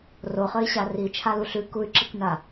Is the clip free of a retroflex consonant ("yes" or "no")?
yes